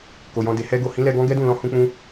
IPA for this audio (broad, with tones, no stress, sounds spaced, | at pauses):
k o˨ j ɔ̃˧ d e˨ h ɛ˧ ɡ o˨ h ĩ˨˦ l ɛ˧ ɡ ɔ̃˦ ɡ ɛ˦ d ũ˦˨ l ɔ̃˧ h ũ˧ k͡p ũ˧